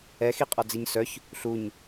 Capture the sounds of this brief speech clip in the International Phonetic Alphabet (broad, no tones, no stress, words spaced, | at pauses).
ɛxiqʼɔd͡ziɲ sœç | ɬuɲ